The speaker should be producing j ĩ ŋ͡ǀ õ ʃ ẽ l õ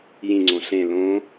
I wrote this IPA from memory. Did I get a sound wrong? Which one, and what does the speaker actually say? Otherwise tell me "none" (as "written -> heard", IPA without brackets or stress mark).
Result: ʃ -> ɬ